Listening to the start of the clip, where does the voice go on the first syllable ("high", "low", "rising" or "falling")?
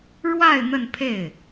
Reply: falling